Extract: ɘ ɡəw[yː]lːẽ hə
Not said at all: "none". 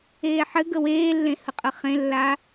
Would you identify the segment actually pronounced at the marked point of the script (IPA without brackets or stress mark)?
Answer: eː